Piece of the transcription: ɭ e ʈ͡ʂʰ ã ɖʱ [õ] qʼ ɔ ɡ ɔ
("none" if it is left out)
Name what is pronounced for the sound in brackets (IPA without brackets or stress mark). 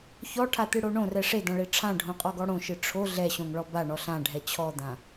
õ